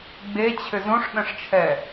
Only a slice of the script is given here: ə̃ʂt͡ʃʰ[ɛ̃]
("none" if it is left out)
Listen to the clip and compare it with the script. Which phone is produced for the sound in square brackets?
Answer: ɛ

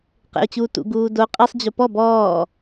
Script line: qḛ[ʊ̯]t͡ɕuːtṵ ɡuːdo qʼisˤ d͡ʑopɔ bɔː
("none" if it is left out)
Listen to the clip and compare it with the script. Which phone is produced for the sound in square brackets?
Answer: ʊ̯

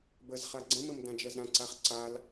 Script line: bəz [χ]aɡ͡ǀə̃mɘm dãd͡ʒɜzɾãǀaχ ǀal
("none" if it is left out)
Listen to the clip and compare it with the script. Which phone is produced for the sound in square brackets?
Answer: χ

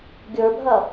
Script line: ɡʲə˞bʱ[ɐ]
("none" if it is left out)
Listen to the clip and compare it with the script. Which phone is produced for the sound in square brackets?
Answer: ɐ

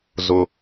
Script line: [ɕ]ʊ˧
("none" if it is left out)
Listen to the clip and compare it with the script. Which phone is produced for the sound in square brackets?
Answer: z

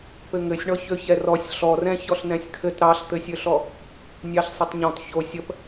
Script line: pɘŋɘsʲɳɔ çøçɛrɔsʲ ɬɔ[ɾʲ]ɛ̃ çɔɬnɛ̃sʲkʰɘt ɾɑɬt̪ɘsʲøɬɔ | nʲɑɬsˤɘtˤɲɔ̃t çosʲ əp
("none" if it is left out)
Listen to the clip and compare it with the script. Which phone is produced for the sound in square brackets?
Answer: r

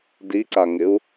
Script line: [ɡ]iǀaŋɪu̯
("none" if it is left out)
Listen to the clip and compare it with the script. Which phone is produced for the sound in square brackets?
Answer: d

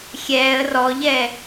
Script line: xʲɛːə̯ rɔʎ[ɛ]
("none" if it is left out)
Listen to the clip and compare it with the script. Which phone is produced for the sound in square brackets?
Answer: ɛ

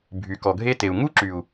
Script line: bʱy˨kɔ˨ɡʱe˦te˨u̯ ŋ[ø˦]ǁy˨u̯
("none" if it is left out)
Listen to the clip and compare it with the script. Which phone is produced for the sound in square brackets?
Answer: u˦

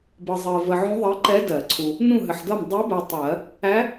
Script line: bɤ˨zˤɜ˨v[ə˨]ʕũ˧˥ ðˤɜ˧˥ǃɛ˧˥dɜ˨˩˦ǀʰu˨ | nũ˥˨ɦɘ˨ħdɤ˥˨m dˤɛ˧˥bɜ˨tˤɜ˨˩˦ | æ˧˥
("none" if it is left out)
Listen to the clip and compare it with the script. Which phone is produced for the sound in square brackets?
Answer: ə˨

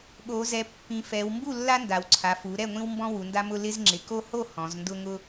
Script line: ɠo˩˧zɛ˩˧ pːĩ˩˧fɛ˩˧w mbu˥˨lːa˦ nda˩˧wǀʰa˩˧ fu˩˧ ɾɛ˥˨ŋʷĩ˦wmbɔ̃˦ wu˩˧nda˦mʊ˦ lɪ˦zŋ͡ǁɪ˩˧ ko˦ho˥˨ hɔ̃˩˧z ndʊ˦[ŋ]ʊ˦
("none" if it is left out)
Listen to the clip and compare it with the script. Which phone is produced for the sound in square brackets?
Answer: ŋ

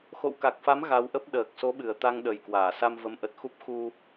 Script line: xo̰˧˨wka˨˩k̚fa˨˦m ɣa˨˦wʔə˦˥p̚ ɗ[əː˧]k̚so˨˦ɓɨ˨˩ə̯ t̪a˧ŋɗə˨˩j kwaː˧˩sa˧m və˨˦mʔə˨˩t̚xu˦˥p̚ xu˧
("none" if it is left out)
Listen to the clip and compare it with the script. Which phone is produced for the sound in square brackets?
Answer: əː˨˩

